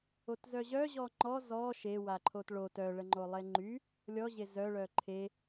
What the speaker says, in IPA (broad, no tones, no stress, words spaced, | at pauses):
otzœʑœ ʑɔŋ͡ǃɔ zɔ ʃe waǃʰotɭo tœɭəŋ͡ǃo lˠeŋ͡ǃy | lʲɔʑe zœɭœ ǃʰe